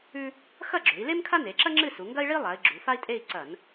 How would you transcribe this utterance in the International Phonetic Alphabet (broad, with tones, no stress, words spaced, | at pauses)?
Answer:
ʉ˥ | xɐ˥˧ɡ͡ǁɵ˩˧i̯le˥m kʰa˥ne˩˧ǁɐ˥ ŋ͡ǁɨ˥˧su˩˧ŋɡɐ˥i̯ɭi˥ lˠa˩˧i̯ ɡ͡ǁu˩˧fa˥i̯tʼe˥˧i̯ ǀɐ˧˩˧n